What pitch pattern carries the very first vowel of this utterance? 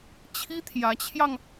high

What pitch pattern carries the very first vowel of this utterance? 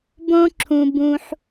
high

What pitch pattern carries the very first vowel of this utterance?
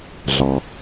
low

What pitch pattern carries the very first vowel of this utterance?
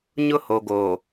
high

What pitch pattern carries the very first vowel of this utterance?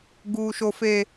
low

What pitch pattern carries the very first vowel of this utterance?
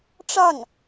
falling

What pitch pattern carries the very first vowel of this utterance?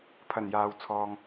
low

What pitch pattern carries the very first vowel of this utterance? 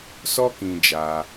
high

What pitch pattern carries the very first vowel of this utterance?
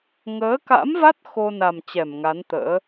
rising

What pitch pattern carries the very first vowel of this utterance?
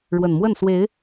low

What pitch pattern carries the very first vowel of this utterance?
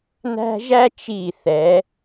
high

